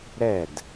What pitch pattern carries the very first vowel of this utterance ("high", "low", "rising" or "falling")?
falling